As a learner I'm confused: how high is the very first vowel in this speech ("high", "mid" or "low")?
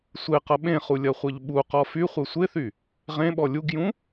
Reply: mid